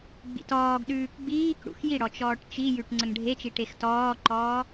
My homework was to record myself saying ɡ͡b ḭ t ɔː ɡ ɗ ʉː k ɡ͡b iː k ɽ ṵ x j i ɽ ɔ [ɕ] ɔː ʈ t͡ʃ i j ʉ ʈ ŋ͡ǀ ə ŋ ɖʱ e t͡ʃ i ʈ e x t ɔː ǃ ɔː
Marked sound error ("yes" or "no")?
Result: yes